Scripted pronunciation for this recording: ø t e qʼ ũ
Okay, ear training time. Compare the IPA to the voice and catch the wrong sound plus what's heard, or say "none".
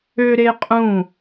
t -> ɾ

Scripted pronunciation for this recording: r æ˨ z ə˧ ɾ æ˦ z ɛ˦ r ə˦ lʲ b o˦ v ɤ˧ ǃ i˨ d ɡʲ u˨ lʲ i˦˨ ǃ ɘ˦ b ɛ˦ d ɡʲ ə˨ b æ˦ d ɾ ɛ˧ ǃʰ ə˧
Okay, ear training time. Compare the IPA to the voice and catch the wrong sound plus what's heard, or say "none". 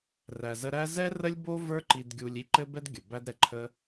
ɤ˧ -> ə˞˧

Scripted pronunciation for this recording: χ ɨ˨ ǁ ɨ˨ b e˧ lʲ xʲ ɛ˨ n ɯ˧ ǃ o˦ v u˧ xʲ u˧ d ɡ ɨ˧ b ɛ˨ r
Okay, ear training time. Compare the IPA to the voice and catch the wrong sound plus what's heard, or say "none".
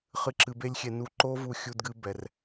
ɯ˧ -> u˧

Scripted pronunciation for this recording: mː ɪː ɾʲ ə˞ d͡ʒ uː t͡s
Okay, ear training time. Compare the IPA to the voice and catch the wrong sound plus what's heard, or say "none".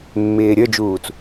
none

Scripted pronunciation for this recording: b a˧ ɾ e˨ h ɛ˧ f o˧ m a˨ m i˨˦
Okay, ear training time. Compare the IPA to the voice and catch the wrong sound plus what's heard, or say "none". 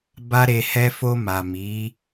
none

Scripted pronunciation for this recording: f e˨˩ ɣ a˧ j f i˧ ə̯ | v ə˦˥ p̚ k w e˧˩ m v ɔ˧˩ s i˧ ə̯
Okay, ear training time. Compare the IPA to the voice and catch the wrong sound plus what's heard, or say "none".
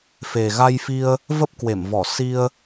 none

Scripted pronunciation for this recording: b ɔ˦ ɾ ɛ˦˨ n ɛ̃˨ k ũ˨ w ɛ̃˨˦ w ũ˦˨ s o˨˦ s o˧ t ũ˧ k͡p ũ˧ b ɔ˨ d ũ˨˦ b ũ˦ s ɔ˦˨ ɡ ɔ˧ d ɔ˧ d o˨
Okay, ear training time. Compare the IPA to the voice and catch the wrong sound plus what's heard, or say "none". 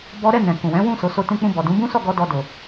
none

